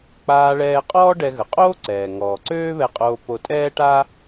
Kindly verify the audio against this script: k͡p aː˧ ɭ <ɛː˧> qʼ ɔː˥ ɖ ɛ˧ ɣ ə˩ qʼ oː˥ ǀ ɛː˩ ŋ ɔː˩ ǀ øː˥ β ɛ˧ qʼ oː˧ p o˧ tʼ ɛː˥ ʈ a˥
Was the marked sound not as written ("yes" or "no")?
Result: no